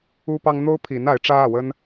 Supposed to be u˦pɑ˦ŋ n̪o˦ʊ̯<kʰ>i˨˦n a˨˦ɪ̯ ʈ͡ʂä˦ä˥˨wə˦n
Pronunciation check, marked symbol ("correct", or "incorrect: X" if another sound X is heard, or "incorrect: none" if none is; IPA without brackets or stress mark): incorrect: pʰ